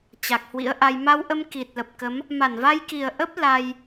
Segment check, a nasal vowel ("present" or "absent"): absent